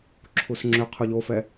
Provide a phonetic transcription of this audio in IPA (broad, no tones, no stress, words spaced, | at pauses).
ǁʰusŋ͡ǁʏ qʰuʎofɛ